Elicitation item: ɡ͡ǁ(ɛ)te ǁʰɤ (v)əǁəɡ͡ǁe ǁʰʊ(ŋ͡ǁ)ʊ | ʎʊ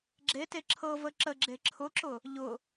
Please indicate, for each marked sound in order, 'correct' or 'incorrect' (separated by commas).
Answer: incorrect, correct, incorrect